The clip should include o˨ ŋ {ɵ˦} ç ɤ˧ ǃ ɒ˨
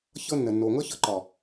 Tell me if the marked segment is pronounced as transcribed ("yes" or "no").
no